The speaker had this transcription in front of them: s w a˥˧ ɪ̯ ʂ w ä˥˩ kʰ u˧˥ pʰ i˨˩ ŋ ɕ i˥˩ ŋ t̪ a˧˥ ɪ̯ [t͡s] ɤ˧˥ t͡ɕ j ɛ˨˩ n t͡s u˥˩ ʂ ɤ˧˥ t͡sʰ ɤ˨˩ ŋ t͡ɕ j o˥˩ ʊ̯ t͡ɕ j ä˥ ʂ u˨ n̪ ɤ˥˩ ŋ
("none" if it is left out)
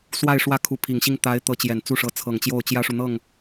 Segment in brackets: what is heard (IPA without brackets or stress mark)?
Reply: t̪